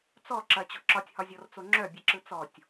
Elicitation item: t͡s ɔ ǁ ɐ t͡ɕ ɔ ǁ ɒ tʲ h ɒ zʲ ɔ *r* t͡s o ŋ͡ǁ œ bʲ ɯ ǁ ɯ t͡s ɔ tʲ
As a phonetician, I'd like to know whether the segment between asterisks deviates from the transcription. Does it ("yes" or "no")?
no